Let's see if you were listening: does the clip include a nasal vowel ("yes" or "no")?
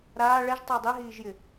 no